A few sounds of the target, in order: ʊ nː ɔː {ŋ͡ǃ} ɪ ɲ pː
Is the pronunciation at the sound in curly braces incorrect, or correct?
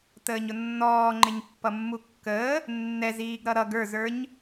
correct